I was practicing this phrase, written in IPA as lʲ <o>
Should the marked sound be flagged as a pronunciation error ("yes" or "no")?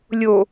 no